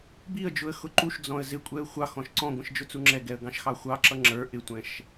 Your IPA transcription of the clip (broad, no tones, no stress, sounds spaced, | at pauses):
b i ə̯ d͡ʒ ʊ ə̯ x ʊ ǃ u ʃ d͡z ɔ̃ ə̯ z ɪ kʷʼ ɛ ə̯ xʷ ɑ x ɔ̃ ʃ ǀ ɔ̃ ɡʷ ə̃ ʃ d͡ʒ ʊ t͡s u ŋ͡ǁ ɛ ɡ ɛ ə̯ ɡ ɑ̃ ʃ x ɑ xʷ ɑ ǁ ʌ ŋ͡ǁ ə˞ ʔ ɪ tʷ ɛ̃ ʃ